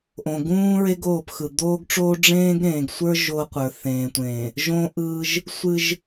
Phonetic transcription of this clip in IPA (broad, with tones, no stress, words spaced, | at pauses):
ʔõ˨ɡũː˦ɹe˦ɡ oː˦˨pxɯ˨ d̪oː˦ɡʈ͡ʂoː˦ ɖ͡ʐẽː˦ɡɾẽː˨ɡsʷə˞˦ ʒo˦qʷə˞˨ θẽː˨tʷẽː˨ | ʒõ˦ʔɯː˦ʒ | sʷɨ˦ʒ